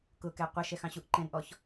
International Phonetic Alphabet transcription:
k ʊ k ɛ qʷ ə ʃ ɛ x ɑ̃ ɕ u ʔ ǃ ɛ̃ n ʔ ɔ ç

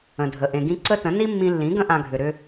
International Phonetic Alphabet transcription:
ə̃˨ dʱ ə˨ ʔ ẽ˨ ɡ ĩ˧ ǀ ə˦ t ə̃˨˦ n i˦ mː ĩ˧ lː ĩ˨˦ ɡ ə̃˦ ʔ ã˧ ɡʱ ʏ˨ ɾ ʏ˧

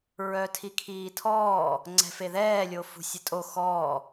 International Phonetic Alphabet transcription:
ɹ œ tʰ i kʰ iː tʰ ɔː | ŋ͡ǀ ɛ̤ f e ð ɛː lʲ o f ṳ sʲ ə tʼ o x ɔː

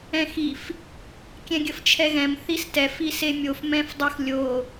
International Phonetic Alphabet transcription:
ɛ̃ x i f | kʲ ɛ̃ ɡʲ ə f t͡ʃʰ ɛ ɣ ɛ̃ m θ i s t ɛ f i s e mʲ o f m ɛ̃ f dˤ ə x lʲ o

